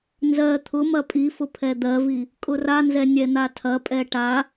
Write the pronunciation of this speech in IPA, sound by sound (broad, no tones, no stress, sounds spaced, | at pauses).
n z ɜ t̪ʰ ʊ m ɐ pʼ i f ʊ pʰ ɛ d̪ ɜ v i | kʼ ʊ r a n z ɛ nʲ ɛ n̪ a tʰ ɐ pʼ ɛ ʈ a